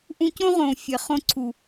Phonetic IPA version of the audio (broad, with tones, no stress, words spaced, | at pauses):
ʔũ˧cõ˦ʁõ˨ fʲe˨χõ˧ǀʰu˨